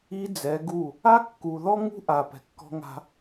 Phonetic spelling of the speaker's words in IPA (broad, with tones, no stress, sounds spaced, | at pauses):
i˦ d͡z ɛ˨˦ ɡ u˦˨ | a˦ kː u˨ ð ɔ˦ ŋ ṳ˦ ʔ a˨ p ɛ̤˨ kː ɔ̤˦ ŋ a̤˦